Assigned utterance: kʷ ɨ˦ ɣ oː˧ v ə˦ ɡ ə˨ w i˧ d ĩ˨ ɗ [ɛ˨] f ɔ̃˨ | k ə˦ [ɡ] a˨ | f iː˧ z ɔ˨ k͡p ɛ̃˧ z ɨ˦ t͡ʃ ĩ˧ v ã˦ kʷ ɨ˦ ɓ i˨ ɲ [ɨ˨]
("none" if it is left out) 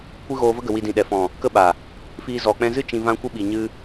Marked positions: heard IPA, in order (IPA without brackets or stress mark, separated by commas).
ɛ˨, ɓ, ɨ˦